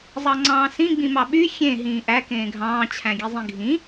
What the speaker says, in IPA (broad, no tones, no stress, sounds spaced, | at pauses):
zˤ ɑ ŋ͡ǀ ɑ̃ː s ĩ ɡ͡b ĩ m ɑ ɓ y xʲ ẽ ɦ ĩː ʔ æ k ẽː ɡʱ ɑ̃ː t͡ɕʰ æ̃ ɡʲ e zˤ ĩ ɡʱ ĩ